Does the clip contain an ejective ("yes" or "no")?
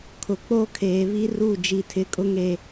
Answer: yes